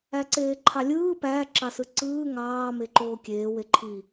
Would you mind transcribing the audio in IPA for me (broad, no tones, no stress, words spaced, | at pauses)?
æǀeːǃʰɑlʲɯː pæ ǁɑsɯǀɯː ŋɑː meǃoːkʲeː weǃʰi